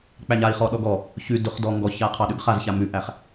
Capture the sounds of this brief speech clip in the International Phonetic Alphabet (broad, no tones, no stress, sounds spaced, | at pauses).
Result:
k͡p æ ɲ a i̯ χ ɔ ɗ ɔ ɡ ɔ | ç ʉ d ʊ χ d ɔ ŋ ɡ ɔ ç a qʰ ɑ ɗ ʉ ɡ χ a z ç a m ʉ ʔ æ χ